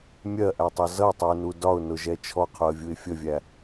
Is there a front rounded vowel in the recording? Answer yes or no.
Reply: no